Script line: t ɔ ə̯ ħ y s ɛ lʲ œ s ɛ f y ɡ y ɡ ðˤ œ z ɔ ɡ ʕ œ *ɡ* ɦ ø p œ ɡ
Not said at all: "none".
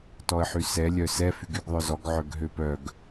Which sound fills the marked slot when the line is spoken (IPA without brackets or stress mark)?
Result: ɡ